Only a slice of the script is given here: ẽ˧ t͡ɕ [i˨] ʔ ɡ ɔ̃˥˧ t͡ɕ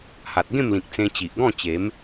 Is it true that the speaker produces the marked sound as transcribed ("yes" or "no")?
yes